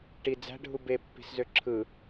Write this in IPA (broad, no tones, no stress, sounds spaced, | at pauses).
ʈ i d͡z æ̤ ɖʱ u b e pː i̤ s z ø ǁʰ ɯ